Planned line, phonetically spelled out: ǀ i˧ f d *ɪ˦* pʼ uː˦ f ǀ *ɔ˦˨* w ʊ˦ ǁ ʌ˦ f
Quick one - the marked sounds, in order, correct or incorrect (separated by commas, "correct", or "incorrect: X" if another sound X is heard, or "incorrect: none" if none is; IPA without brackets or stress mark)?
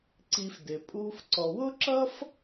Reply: incorrect: ɪ˨, incorrect: ɔ˧